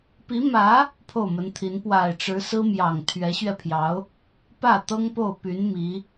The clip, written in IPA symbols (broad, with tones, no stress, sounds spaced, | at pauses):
p i˧˥ m ä˧˥ | pʰ o˥˩ ʊ̯ m ə˧˥ n t̪ʰ i˧˥ n p w a˨˩ ɪ̯ ʈ͡ʂ ɻ̩˧˥ s ɹ̩˥ m j ɑ˨˩ ŋ t̪ʰ ɥ ɛ˧˥ ɕ ɥ ɛ˧ pʰ j ɑ˧˥ ʊ̯ | p ä˥˩ t̪ ɤ˥ ŋ p o˥˩ ʊ̯ p y˧˥ n m i˧˥